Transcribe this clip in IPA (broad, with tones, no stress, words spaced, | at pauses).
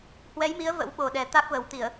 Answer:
hwɛ˨˦jmi˨˦ə̯ və̰˧˥wɓo˨˩ɗɛ˨˩ t̪a˦˥k̚və˨˩w t̪i˧˩˨ə̯